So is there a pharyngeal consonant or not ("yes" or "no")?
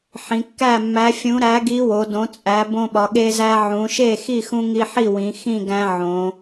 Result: yes